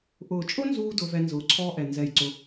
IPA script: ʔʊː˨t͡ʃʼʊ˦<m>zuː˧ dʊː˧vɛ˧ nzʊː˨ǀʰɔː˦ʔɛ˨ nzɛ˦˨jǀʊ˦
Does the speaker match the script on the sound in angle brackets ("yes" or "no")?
no